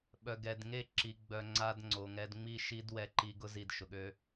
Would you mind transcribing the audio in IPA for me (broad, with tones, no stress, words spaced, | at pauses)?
ɓœ˨ɡɛ˨dŋe˦˨ ǁi˨ɡ͡bœ˨ ŋ͡ǀa˦dŋ͡ǀo˨ŋɛ˦d ŋ͡mi˦ʃi˦d wɛ˦ǃi˦ ɡʊ˦zi˨dʃʊ˨ɠø˦